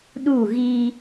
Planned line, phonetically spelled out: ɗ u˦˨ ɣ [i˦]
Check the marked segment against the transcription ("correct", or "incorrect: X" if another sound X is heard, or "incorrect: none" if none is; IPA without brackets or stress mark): correct